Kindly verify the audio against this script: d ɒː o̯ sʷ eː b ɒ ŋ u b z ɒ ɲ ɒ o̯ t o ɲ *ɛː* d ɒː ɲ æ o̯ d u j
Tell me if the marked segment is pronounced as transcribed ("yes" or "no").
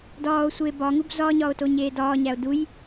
no